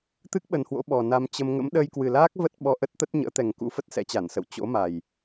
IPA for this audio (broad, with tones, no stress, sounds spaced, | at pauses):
t̪ ɨ˦˥ k̚ ɓ ə˨˩ n h w o̰˧˥ ɓ ɔ˨˩ n a˧ m t͡ɕ ə˧ m ŋ ə̰˧˥ m ɗ əː˧ j k w ɨ˨˩ l aː˦˥ k̚ v ə˦˥ t̚ ɓ ɔ˧ ʔ ə˦˥ t̚ t̪ ə˦˥ t̚ ɲ ə̰ː˧˥ t̪ ɛ˨˩ ŋ k ṵ˧˥ f ə˦˥ t̚ s ɛ̰˧˥ t͡ɕ a˧˩ n s ə̰˧˨ w t͡ɕ o̰˧˥ m a˨˩ j